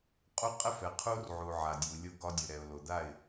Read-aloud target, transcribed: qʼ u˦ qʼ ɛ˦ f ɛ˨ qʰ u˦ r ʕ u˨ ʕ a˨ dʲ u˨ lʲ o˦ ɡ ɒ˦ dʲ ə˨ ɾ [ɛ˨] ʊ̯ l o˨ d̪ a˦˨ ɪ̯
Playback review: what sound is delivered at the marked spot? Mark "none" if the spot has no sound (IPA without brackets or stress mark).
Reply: ɛ˨